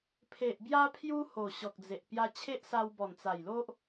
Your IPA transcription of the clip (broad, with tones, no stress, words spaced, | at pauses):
pʰe˨ʔbja˦ pʰju˦ ho˨˩ɕɔ˨k̚d͡ze˨ʔ pja˧t͡ɕʰe˦ʔsa˧wbɔ˨˩n t͡sa˨˩jlo˦ʔ